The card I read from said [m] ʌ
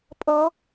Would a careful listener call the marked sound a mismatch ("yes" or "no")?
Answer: yes